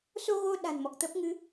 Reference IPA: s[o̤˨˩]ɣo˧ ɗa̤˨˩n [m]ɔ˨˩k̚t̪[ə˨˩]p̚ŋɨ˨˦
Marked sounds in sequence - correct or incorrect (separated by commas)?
incorrect, correct, incorrect